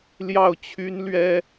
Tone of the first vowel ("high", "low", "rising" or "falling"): falling